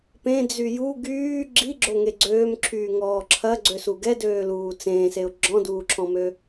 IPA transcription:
p ẽ d͡z y j u ɡ yː ɡ͡ǁ i ɡ͡ǁ o ŋ e ɡ͡ǀ øː m ǁʰ yː ŋ ɔː ǁʰ ɐ ɡ͡ǀ ø s u ɡ ɛ d øː l uː t͡s ẽː s e ʊ̯ ɡ͡ǁ ɔ̃ d uː ǁʰ ɔ̃ m ø

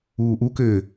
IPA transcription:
uː ʔ u k ɘː

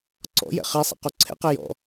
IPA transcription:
ǀ ɔ̰ j ɛ̰ χ e sˤ ɛ̰ q u ǀʰ ɛ̰ q ɛ j ɔ̰

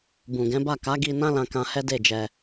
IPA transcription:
b ũ˨ ɡ ɛ̃˨˦ b a˦˨ k a˨˦ ɡ i˧ n ã˦ l ã˧ k ã˧ h ɛ˦ d e˦˨ d͡ʒ ɛ˧

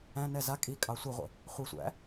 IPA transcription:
æ̃ n ɛ z a kʼ i kʼ ɑ sʷ i ʁʷ ə̰ | χʷ i sʷ æ̰

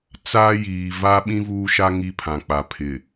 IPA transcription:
t͡s aː˦ j iː˨ v a˦ ɓ ĩ˦ v uː˦ ʃ a˦ ŋ i˦ pʰ ã˨ k͡p a˨ pʰ ɪ˨

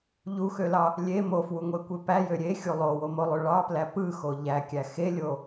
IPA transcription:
ʎ u x ø l ɑ | lʲ e m o f w u ŋʷ e kʷ e p æ j ø ɾʲ e xʲ u lˠ o w o m o lˠ ø ɭ ɑ p l æ p ɯ x o ʎ æ kʲ æ x e lʲ o

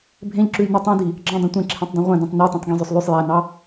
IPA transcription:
bʱ ẽ ʎ ǁ ʉ j n ø tˤ ĩ d i | ɡ͡ǁ ɑ̃ dˤ ɛ̃ tʷ ẽ ǁʰ ẽ tˤ dˤ ẽ ʁʷ ɛ̃ d õ tˤ n ɔ t õ tˤ ɡ ĩ zˤ ø sˤ lˠ ʉ sˤ j æ n ɑ

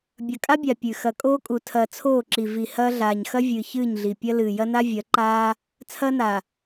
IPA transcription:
bʲ ɐ˨ kʼ a˦ bʲ a˨ pʲ ʉ˨ x ɐ˨ kʼ oː˦ kʼ u˨ tʰ ɐː˨ t͡sʰ oː˦˨ ǁ i˨ v i˨ h ɐː˦ ɮ aː˨ ɲ x ɐ˦ vʲ ɨː˨ ç ɨː˦˨ ɲ ɮ i˨ pʲ ɐ˦ l ɨː˨ j ɐ˦ n a˦ vʲ ɐ˨˦ ǃ aː˦ | t͡sʰ ɐː˦ n a˨

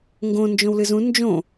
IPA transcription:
ŋ ɡ õ n d͡ʒ õ w l ɨ z ũ n d͡ʒ õ

